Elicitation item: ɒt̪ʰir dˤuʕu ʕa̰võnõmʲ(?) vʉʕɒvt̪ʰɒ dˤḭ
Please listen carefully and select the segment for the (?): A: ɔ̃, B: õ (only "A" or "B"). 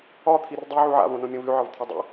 B